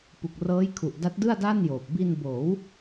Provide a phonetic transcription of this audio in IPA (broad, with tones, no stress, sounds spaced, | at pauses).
p u˨˩ k̚ r ɤː˦˥ j kʰ u˨˩ ʔ d a˦˥ t̚ d ɯ˥˩ a̯ d aː˥˩ n j oː˨˩ p̚ b i˧ n b oː˩˦ w